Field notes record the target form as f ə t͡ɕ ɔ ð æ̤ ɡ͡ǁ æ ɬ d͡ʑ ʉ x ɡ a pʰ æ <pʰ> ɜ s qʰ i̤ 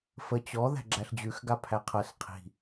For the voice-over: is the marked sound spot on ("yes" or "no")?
no